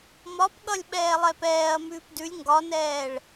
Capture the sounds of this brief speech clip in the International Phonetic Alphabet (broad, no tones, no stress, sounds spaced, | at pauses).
m ɒ p ɠ ʌ lʲ ɓ ɛː lˠ ɛ p ɛː ɐ̯ m ʉː p d ʉ lʲ ŋ ɡ ɒ n ɛː ɭ